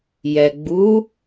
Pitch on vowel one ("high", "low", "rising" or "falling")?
low